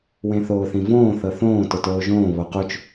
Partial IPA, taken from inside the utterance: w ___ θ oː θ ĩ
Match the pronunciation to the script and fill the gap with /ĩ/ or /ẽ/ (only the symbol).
ẽ